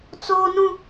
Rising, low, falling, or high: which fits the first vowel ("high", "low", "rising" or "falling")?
high